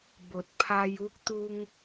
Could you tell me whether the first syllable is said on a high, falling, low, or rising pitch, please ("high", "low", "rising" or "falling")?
low